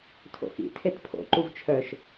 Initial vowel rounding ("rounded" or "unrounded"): rounded